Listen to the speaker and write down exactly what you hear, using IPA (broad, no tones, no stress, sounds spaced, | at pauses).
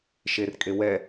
ʃ e r kʼ e w ɛ